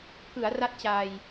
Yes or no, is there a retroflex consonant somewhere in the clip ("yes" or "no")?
no